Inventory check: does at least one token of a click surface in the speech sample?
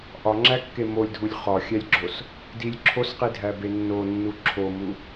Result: yes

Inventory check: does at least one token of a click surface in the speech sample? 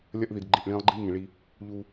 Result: yes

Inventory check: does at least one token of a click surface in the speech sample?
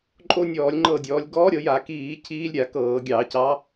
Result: yes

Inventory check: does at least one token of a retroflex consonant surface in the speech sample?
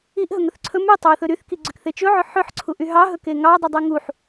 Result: no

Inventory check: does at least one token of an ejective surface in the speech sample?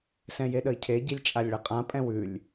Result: yes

